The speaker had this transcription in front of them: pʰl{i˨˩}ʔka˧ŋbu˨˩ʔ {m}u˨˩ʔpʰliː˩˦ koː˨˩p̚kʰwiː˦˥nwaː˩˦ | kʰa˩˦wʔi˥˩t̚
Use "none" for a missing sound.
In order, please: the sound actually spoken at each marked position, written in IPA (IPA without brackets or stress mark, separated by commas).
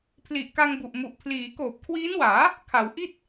i˨˩, m